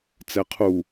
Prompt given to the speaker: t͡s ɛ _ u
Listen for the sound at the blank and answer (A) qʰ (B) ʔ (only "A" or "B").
A